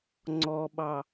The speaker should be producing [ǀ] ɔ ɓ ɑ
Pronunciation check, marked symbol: incorrect: ŋ͡ǀ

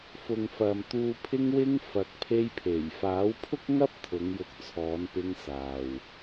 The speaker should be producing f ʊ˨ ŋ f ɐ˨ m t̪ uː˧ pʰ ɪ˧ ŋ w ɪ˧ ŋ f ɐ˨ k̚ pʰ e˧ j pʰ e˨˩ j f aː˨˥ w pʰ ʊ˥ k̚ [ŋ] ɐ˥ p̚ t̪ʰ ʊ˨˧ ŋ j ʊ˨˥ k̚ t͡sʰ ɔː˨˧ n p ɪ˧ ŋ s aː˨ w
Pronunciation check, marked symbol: correct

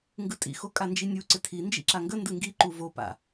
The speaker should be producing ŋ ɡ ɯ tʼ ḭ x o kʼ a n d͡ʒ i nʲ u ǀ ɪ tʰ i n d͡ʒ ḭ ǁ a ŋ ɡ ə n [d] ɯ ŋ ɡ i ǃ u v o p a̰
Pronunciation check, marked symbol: correct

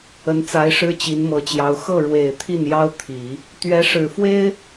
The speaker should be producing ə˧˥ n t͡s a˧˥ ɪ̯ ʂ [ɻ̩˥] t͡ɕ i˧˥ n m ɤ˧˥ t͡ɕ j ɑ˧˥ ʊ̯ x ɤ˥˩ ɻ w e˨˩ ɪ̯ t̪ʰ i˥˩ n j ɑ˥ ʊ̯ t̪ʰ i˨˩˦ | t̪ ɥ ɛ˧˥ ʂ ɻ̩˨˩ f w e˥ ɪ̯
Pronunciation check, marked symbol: correct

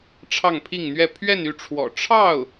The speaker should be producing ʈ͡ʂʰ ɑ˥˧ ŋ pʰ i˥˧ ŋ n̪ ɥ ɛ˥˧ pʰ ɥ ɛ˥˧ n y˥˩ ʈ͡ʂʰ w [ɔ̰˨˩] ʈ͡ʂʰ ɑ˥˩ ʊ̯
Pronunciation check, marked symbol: correct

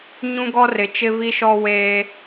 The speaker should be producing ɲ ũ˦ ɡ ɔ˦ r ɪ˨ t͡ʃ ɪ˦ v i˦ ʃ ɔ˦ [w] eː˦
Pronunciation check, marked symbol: correct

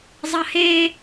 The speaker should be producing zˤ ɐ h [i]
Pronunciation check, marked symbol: incorrect: e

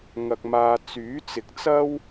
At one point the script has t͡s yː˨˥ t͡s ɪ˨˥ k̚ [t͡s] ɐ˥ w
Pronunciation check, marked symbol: correct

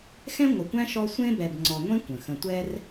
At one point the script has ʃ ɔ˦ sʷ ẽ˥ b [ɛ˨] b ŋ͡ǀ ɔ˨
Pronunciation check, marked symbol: correct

